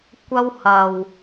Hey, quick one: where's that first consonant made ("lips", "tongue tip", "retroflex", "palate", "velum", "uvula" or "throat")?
velum